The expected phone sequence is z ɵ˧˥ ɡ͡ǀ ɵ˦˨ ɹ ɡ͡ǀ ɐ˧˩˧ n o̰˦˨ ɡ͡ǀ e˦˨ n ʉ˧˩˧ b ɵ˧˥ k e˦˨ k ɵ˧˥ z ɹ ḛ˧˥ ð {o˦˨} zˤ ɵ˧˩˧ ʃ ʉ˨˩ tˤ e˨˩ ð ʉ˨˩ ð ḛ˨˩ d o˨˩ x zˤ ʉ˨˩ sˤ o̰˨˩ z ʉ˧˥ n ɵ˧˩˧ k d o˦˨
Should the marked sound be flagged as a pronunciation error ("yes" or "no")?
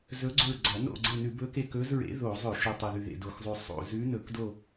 yes